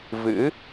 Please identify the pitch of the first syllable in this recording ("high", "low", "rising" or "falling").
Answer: rising